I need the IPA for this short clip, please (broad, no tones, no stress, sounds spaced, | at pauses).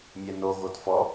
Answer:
mʲ ɛ n o ɣ o t f ɔ